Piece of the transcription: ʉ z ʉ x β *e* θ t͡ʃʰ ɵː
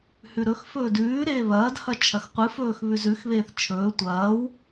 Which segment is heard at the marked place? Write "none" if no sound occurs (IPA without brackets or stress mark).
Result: eː